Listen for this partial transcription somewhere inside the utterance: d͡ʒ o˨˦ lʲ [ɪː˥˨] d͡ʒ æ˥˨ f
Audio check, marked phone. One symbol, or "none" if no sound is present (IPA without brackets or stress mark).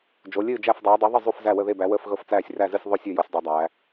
ɨː˥˨